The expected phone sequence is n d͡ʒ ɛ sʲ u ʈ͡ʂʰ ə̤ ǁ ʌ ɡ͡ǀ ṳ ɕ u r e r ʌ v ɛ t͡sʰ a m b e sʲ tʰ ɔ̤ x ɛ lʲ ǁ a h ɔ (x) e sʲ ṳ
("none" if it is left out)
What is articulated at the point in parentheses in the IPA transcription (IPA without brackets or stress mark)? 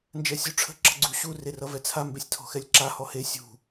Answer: h